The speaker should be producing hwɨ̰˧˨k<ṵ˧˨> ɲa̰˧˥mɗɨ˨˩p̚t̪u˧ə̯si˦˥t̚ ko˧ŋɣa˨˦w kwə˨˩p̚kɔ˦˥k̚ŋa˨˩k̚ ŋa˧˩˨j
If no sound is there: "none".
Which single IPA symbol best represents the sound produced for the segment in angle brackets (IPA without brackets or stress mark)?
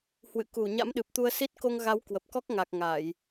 u˧˩